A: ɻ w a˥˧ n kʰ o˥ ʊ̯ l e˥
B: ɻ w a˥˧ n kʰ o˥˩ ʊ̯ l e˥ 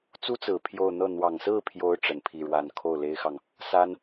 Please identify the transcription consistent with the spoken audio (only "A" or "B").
B